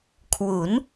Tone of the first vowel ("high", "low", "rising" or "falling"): rising